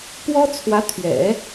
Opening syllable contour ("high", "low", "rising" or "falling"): high